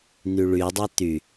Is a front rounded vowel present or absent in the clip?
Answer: present